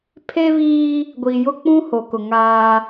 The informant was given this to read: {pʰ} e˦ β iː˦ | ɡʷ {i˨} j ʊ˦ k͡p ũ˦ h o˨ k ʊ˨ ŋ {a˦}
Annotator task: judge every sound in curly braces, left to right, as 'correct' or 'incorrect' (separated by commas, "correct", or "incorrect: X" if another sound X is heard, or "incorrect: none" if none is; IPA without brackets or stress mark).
correct, correct, incorrect: aː˦